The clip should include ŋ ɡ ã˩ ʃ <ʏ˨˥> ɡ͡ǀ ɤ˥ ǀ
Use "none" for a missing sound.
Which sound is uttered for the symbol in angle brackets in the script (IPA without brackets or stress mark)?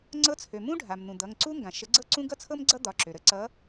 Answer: ə˨˥